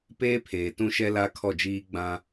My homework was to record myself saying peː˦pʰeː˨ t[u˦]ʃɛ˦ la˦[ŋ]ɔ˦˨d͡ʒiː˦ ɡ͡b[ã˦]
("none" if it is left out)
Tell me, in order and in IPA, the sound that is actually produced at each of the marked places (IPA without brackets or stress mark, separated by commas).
ũ˦, kʰ, ã˦